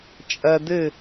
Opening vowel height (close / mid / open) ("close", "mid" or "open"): open